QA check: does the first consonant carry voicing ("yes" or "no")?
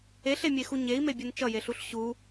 no